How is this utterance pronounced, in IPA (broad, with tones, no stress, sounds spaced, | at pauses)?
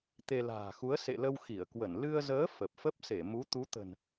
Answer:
t̪ e˧ l a̤ː˨˩ x u˨˦ ə̯ s ḛ˧˨ l ə˧ w x i˧˩ ə̯ k w ə˧˩ n l ɨ˧ ə̯ z əː˨˦ f ə˨˩ p̚ f ə˦˥ p̚ s e˧˩ m u˨˦ t̪ u˨˦ t̪ ə̤˨˩ n